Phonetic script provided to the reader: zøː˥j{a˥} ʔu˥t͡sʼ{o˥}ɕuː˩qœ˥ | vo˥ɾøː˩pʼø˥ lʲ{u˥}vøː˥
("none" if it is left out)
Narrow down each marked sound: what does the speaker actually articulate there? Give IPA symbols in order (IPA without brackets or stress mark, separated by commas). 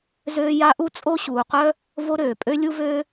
a˥, o˥, u˥